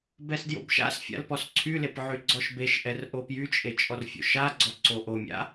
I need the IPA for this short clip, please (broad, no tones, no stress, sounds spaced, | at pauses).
b ɛ s d j o̰ b ʃ a̰ s fʲ a̰ l p ɔ s ǀʰ y l e p ʕ y ɡ͡ǀ ɔ ʃ b e ʃ ʔ ɛ r ʔ o p j y t͡ʃʼ e t͡ʃʼ ɔ r fʲ o̰ ʃ a ɡ͡ǀ ɔ ǀ o ʔ o mʲ a̰